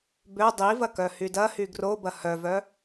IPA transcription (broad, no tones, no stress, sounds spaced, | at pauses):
b ø dˤ i v ɐ k œ h y d ɐ h y ɡ r o b ɐ h œ v œ